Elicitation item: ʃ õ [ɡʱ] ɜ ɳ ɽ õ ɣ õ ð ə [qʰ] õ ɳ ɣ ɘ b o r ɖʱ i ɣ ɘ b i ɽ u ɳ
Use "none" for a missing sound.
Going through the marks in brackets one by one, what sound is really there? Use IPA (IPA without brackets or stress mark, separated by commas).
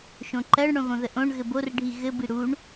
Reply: ǃ, ʔ